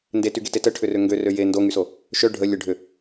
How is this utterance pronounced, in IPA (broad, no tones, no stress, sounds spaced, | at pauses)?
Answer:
n d e t y ɡ e t e t ə ʈʰ ʏ r ø ŋ ɡ ø r ø j e n d o ŋ y s o | ʃ œ ɖʱ ə lʲ ə ɖʱ ʏ